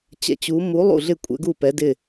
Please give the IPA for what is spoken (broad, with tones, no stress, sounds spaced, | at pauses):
t͡ɕ ɛ̰˨˦ t͡ɕ u˨˦ m u˨˦ lˠ ṵ˥˩ ɮ ɪ˥˩ kʷʼ ɛ̰˨˦ ɡ u˥˩ p ɛ˨˦ d ɪ˥˩